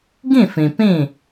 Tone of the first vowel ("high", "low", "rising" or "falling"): falling